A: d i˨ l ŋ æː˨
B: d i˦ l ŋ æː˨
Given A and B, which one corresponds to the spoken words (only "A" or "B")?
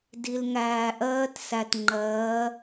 A